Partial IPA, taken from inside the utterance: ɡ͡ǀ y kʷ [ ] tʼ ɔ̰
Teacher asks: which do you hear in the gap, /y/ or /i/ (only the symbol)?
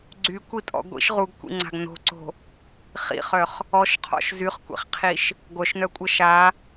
i